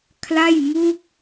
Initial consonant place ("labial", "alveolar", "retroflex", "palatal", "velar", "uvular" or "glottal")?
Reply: velar